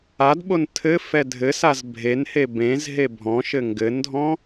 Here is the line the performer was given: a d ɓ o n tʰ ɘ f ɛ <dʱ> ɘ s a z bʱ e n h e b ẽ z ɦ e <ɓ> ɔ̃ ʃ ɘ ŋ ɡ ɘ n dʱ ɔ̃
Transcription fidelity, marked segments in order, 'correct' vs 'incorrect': correct, incorrect

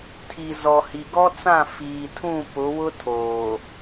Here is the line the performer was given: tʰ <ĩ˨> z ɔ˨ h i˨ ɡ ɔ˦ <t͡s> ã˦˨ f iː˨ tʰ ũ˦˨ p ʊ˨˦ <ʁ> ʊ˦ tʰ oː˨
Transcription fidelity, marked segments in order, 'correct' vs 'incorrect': incorrect, correct, incorrect

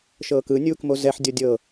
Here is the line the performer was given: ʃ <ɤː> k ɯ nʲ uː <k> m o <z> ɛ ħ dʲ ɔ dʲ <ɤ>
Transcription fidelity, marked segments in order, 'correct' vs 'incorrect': correct, correct, correct, correct

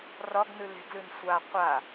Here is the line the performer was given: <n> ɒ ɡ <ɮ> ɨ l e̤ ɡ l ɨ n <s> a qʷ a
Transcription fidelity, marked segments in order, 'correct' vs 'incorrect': incorrect, incorrect, incorrect

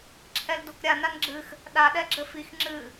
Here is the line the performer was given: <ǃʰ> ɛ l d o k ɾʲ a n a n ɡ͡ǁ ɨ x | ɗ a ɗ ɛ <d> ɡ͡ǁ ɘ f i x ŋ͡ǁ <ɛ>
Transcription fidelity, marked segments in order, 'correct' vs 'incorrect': incorrect, incorrect, incorrect

